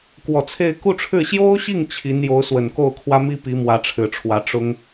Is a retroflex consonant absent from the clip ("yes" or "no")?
no